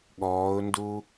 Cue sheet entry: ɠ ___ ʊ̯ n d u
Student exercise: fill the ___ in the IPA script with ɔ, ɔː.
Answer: ɔː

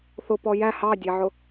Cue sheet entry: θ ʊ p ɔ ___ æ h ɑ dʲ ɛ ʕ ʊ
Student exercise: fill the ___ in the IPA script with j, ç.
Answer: j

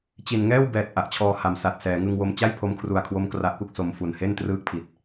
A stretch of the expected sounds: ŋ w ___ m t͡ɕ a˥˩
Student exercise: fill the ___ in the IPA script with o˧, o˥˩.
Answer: o˧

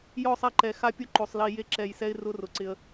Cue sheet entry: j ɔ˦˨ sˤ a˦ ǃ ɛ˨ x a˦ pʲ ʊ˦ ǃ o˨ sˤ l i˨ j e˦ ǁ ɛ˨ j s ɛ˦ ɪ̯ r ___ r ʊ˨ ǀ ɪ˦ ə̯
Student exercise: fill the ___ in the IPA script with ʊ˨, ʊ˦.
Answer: ʊ˦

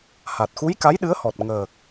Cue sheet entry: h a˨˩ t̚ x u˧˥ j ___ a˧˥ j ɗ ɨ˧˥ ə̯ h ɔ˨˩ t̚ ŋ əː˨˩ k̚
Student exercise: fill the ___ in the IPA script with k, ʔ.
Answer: k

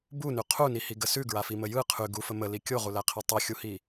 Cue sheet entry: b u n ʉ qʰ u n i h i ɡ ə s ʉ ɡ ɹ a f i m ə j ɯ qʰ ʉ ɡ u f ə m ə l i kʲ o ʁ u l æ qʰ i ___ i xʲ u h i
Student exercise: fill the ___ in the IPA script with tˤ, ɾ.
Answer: tˤ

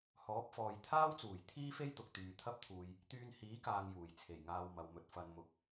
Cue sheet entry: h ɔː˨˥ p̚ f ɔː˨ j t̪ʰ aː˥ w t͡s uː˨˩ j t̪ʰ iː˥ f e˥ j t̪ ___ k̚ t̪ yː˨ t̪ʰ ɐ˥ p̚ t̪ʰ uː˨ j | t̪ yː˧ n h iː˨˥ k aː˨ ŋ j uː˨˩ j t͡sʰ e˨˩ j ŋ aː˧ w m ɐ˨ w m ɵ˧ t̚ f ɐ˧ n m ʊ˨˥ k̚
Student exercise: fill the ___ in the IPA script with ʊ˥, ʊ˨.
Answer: ʊ˨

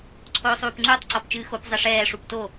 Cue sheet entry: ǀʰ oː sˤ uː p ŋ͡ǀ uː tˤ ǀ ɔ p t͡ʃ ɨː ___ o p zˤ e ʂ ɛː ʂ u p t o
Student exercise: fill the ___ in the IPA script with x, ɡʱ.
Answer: x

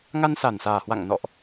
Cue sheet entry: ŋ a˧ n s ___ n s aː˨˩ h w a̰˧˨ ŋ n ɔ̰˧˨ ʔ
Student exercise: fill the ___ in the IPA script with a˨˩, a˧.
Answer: a˨˩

